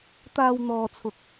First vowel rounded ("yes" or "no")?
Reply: no